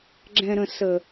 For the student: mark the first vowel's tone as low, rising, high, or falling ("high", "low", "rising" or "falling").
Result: low